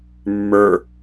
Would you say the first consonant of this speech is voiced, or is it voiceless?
voiced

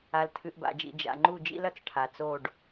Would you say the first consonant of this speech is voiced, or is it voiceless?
voiced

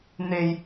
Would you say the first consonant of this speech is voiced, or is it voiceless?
voiced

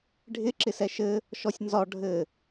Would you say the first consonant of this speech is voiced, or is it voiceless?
voiced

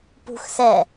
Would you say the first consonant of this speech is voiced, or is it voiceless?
voiceless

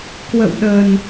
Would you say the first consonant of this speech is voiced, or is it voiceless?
voiceless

